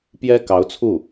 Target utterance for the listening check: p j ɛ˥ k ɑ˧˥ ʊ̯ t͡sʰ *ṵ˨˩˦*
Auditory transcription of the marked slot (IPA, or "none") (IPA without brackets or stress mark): u˥˩